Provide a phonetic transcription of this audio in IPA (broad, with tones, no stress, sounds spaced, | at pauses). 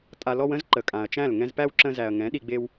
tʼ a˨ l ɔ˧ w ə̃˦ z ǃ ə˨ kʼ ã˨ ɐ̯ t͡ʃ æ̃˦˨ l ŋ ɛ̃˧ z p æ˦ w ǁ ə̃˧ z æ˨ ɐ̯ ŋ ɛ̃˨˦ ɗ i˧ ɡ͡b e˦ w